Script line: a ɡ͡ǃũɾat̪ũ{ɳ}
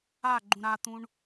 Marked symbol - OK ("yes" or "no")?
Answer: yes